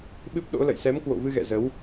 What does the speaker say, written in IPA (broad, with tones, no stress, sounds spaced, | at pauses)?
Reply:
ɓ ɨ˦˥ p̚ ɗ o̰˧˥ l ə̰˧˨ j s ɛ˨˦ m k w o̰˧˨ v ɨ˧ ɣ ɛ̰˧˨ z ə˨˦ w